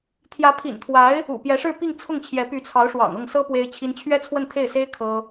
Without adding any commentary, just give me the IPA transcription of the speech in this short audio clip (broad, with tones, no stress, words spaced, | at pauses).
t̪ʰjä˧˥pʰḭ˨˩nt̪ʰwa˧˥ɪ̯ | ṵ˨˩pjɛ˧˥ʂɻ̩˥˧ pi˥˧ŋt͡sʰʊ˥˩ŋt͡ɕʰjɛ˧˥ py˧˥t͡sʰɑ˧˥ʊ̯ ʂwɑ̰˨˩ŋɤ˥˩ŋsɤ˥ pwe˥ɪ̯t͡ɕʰi˥n t͡ɕʰɥɛ˥t͡sʰwə˥˧nt̪ʰe˥˩ɪ̯se˥ɪ̯ kʰɤ˥